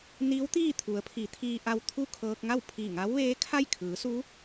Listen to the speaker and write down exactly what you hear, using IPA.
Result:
n iː˧˥ w t̪ iː˥˨ t̪ʰ u˩˧ ə̯ pʰ i˩˧ t̪ʰ iː˧ ʔ a˧ w t̪ʰ u˥˨ kʰ ɤː˧ k̚ ŋ a˥˨ w pʰ i˧˩ ŋ a˧˥ w ʋ eː˧˥ kʰ a˥˨ j kʰ ɯː˩˧ s u˧˥

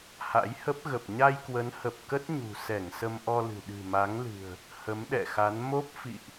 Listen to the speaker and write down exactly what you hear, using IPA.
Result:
h a̰˧˥ j h ə˦˥ p̚ ɣ ə˨˩ p̚ ɲ a˧ j k w ə˨˦ n h ə˨˩ p̚ k ə˦˥ t̚ ɲ ṳ˨˩ s ɛ˧˩ ŋ s ə˧ m ʔ ɔ˧ l ɨ̤˨˩ ɗ ɨ̤˨˩ m a˨˦ ŋ l ɨ̤˨˩ ə̯ | h ə˨˦ m ɗ ɛ̰˧˨ x a˨˦ n m o˦˥ p̚ f ḭ˧˨ ʔ

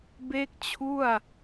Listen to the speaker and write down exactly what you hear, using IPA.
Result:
b e˥˩ k̚ t͡ɕʰ u˥˩ a̯

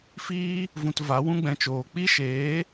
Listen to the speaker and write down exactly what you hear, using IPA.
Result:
f iː˦ | v ũ˧ t v a˨˦ w ũ˦ ɡ͡b ɛ̃˧ t͡ʃ oː˨ k͡p i˦ ʃ eː˨˦

